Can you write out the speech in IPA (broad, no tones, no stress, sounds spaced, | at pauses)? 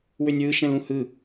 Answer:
w ø nʲ w ɯ ʃ ɛ̃ l ũ h ɯ